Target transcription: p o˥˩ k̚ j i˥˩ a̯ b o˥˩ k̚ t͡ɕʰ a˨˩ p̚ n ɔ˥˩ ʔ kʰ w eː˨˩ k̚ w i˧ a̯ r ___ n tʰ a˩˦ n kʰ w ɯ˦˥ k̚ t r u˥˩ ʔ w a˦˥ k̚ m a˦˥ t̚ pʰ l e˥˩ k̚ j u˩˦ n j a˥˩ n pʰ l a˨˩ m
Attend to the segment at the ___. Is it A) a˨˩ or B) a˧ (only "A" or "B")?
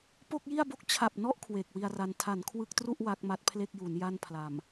B